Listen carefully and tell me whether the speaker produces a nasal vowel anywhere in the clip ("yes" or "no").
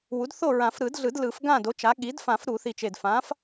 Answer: yes